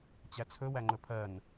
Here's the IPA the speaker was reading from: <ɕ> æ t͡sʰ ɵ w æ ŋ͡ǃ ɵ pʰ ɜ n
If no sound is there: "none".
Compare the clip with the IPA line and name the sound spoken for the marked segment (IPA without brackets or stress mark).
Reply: t͡ɕ